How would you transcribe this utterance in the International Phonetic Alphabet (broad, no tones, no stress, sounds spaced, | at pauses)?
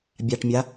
bʲ a ʈ mʲ a